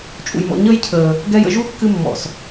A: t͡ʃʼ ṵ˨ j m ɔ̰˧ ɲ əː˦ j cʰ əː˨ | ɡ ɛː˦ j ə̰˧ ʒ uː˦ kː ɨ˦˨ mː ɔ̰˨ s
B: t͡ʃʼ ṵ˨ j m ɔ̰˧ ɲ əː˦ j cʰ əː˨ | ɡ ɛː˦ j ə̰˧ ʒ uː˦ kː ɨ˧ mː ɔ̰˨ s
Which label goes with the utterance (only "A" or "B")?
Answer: B